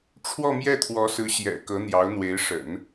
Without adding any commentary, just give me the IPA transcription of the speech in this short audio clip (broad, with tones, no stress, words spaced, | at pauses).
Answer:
ʈ͡ʂʰwɔ˥˧mjɛ˥˩t̪ʰwɔ˧˥sɹ̩˧˥ ɕjɛ̰˨˩ kɤ˧˥n̪jɑ˧˥ʊ̯n̪we˧˥ɪ̯ ʂə̰˨˩˦n